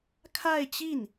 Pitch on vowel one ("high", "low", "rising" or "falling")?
falling